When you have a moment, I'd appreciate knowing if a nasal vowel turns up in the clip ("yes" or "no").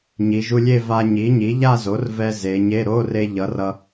no